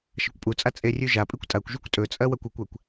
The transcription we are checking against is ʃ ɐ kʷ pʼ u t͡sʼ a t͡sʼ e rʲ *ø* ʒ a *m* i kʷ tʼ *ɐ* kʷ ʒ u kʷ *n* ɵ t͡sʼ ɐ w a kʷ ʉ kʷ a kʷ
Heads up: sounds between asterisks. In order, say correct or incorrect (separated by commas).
incorrect, incorrect, incorrect, incorrect